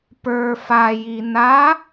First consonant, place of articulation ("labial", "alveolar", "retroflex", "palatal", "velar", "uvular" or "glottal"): labial